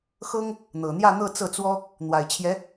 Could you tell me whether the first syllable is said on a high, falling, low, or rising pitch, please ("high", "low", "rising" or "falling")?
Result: high